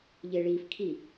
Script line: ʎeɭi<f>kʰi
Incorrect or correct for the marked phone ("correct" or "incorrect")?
correct